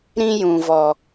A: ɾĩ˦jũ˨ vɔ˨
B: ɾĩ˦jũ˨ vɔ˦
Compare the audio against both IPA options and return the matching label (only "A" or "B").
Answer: A